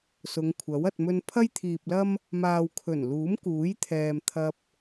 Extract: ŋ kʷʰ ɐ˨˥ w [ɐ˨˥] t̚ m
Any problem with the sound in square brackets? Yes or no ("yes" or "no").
yes